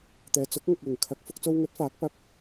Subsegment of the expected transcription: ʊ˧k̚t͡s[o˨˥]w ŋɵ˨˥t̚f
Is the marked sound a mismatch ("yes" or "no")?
yes